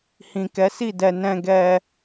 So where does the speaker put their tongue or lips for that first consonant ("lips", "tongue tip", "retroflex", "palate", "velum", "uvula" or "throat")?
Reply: throat